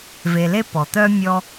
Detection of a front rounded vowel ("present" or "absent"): present